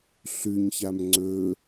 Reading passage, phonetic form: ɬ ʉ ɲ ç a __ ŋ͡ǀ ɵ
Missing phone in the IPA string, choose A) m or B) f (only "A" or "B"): A